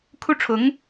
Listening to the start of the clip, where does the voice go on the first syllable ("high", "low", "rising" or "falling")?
high